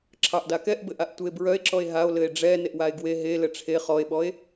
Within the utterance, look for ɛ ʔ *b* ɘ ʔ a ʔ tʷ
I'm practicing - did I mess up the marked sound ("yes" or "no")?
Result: no